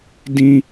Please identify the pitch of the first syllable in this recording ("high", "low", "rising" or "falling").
high